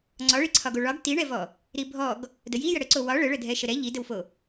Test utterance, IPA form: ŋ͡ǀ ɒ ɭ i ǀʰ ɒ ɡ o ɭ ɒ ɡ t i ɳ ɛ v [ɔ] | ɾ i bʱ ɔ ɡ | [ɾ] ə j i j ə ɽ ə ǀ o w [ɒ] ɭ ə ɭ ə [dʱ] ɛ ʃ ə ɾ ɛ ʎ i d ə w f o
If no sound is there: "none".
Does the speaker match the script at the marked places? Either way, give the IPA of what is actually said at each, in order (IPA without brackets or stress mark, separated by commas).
ɔ, d, ɒ, dʱ